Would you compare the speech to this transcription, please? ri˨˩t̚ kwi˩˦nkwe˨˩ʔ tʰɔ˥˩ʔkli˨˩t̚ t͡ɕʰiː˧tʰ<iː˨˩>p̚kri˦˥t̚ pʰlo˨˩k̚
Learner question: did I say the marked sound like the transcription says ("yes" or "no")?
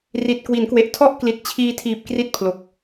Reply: yes